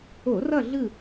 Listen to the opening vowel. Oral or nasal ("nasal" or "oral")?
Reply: oral